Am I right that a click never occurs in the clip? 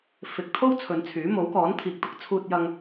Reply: yes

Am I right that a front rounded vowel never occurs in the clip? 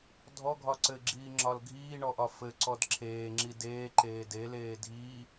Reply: yes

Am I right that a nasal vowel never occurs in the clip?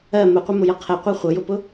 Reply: yes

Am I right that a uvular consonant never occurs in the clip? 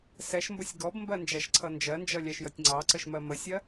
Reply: yes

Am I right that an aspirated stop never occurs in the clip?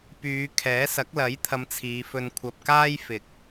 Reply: no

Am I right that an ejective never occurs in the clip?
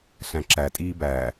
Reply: no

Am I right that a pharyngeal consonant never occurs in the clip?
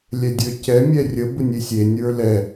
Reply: yes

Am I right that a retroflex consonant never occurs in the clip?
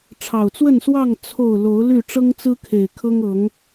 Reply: no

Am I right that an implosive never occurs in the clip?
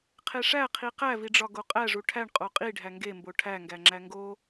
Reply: yes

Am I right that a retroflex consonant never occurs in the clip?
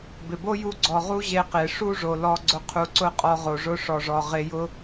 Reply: no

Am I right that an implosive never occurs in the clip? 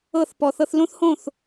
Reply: yes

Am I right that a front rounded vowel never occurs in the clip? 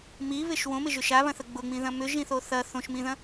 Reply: no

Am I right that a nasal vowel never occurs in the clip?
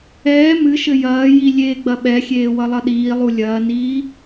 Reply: yes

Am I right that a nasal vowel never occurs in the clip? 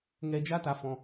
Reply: no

